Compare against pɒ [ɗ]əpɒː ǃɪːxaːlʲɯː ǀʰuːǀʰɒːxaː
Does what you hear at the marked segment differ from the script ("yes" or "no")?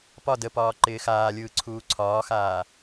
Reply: yes